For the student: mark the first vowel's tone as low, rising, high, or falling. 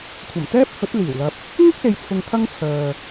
low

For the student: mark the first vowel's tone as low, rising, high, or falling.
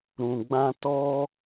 low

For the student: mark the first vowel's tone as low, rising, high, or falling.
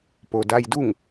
low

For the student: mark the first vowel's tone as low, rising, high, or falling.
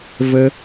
high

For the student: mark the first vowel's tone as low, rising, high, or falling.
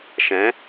rising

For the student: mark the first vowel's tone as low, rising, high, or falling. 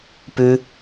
high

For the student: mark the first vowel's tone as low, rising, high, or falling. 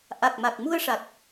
low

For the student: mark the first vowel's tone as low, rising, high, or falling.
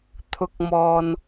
rising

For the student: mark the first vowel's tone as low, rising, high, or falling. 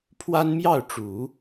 high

